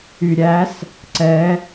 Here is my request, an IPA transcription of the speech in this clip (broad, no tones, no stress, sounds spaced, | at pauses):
y ɾʲ æ s | ǀ ɛ